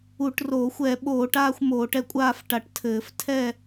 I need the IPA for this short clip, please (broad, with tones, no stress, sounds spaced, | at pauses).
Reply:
u˧˩˧ ʈ r oː˧˩˧ xʷ ɛ˧˩˧ ɓ oː˧˩˧ ʈ aː˥˧ xʷ m oː˧˩˧ ʈ ɛ˥˧ kʷʼ aː˥˧ f ʈ a˧˩˧ ʈ tʰ ɘː˧˩˧ f tʰ ɛ˥˧